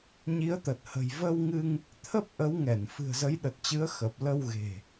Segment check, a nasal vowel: absent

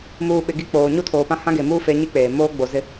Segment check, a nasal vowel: present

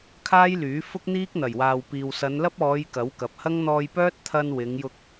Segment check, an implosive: absent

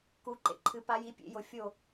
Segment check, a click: present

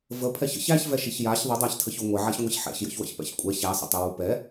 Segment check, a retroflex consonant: absent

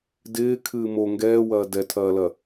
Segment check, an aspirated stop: present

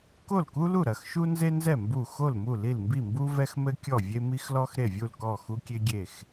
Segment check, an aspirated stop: absent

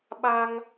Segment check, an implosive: present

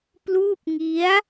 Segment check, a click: absent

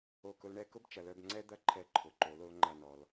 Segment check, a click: present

